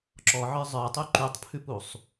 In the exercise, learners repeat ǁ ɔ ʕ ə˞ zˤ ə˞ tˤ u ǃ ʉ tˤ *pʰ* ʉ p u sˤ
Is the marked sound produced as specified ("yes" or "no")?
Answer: yes